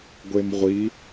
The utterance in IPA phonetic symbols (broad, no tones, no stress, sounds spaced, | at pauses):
ɡʷ e m ʁʷ i